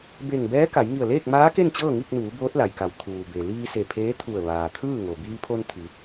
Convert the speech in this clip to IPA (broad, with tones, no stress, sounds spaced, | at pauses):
b e˧˩ ŋ b ɛː˧˥ k a˩˧ j ŋ i˧˩ ə̯ l eː˥˨ k̚ m aː˧˥ k e˥˨ n t͡ɕ ɤː˥˨ ŋ i˥˨ k̚ n uː˩˧ b oː˧˥ t̚ l a˩ j k a˩˧ w t̪ʰ uː˩ b e˩ l iː˧ s e˧˩ pʰ eː˧˥ t̪ʰ u˧˩ ə̯ ʋ aː˩ t̪ʰ ɯː˥˨ ŋ o˩ b iː˧ pʰ o˧ n t̪ʰ i˩˧